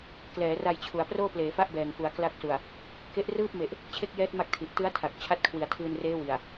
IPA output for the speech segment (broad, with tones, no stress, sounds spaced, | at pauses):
k l ɛː˩˦ r a˧ j t͡ɕʰ u˩˦ a̯ p r oː˥˩ p l eː˩˦ f a˥˩ ʔ b ɛː˨˩ ŋ f u˩˦ a̯ k l a˦˥ k̚ s u˨˩ a̯ | k e˦˥ ʔ r ɯː˥˩ p̚ m e˨˩ ʔ | t͡ɕʰ e˥˩ k̚ j ɛː˦˥ t̚ m a˥˩ k̚ tʰ i˨˩ ʔ t ɯ˦˥ a̯ tʰ a˨˩ k̚ t͡ɕʰ a˦˥ t̚ kʰ w i˩˦ a̯ tʰ ɯː˧ n r eː˦˥ w i˨˩ a̯